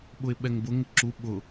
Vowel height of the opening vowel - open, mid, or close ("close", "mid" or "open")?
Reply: close